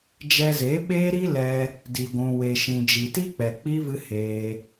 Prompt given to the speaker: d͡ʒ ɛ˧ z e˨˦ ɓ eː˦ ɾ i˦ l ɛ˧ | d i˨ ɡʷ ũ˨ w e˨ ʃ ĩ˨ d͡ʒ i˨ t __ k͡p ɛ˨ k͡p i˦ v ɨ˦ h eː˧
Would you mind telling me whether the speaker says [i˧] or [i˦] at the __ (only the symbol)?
i˦